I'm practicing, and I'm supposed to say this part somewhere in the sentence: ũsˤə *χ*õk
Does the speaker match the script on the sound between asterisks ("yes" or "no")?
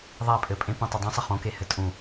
yes